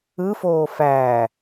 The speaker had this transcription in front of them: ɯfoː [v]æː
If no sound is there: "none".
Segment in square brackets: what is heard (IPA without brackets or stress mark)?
f